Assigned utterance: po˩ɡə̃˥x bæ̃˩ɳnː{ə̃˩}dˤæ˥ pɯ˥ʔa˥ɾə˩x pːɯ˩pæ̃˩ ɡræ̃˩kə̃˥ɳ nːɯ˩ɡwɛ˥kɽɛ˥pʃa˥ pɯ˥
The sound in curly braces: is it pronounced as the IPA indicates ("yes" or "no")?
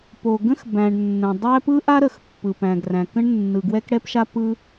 yes